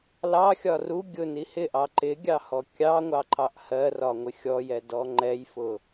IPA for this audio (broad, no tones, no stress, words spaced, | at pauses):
lɑxʲɒ ru ɡʲʊni hɪʔɑ ǃɪɡʲɑhɔ kʲɑŋʷɑǃɑʔ hɜrɒŋʷɪ xʲɔjɛdɔ ŋ͡ǃɛjfʊ